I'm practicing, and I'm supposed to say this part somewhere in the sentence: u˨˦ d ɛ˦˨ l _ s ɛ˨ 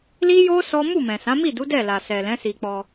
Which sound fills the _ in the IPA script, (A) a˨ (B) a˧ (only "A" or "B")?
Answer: A